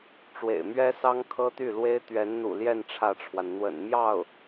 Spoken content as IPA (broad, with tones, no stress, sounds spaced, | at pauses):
ʈ͡ʂ w ḛ˨˩ ɪ̯ m ɥ ɛ˥ s ɑ˥ ŋ kʰ ɤ˥ t̪ y˥˩ l w e˥ ɪ̯ t̪ ɥ ɛ˧˥ n n̪ ṵ˨˩ l j ɛ˥˧ n ʈ͡ʂʰ ä˥˩ ʈ͡ʂʰ w a˩ n n̪ w ə̰˨˩ n m j ɑ˥˩ ʊ̯